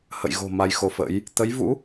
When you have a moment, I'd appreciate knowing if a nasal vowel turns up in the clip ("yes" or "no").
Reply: no